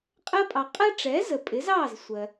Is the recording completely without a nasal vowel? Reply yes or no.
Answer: yes